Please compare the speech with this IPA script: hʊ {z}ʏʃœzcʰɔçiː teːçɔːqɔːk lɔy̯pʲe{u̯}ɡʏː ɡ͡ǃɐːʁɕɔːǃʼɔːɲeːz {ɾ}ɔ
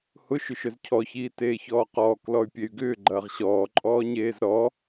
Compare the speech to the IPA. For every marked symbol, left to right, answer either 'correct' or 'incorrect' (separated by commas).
incorrect, incorrect, correct